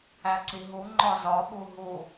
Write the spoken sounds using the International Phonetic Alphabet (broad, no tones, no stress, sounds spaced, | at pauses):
æ ǀ i ɦ u ŋ͡ǃ ɒ z ɒ ɓ u ɦ u